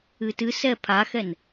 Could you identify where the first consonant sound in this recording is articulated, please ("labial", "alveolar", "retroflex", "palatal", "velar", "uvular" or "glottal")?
alveolar